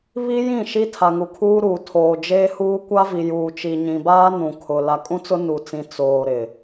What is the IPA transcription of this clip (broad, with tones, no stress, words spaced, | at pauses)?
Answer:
βi˦jĩ˦˨ ʃi˦tʰa˨ŋu˨kʰuː˦ ɾuː˨ tʰoː˨d͡ʒeː˦huː˦ kʷa˦vi˨juː˨ t͡ʃi˨ɲĩ˨baː˦ nũ˨kʰʊ˨ la˨kʼũ˦t͡sʊ˦ nu˨t͡sĩ˨ t͡soː˨ ɾɪ˨